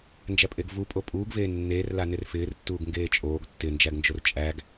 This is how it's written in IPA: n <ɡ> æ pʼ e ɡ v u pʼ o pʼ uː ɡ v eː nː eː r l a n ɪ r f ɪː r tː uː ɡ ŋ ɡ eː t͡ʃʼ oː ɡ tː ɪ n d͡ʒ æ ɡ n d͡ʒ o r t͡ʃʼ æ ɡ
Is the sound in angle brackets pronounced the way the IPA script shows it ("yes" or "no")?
no